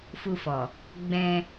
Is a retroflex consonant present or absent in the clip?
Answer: absent